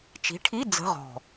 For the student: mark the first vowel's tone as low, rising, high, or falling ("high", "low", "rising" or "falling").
rising